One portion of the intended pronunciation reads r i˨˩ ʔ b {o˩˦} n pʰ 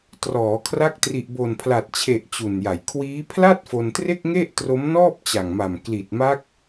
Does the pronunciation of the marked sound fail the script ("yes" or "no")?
yes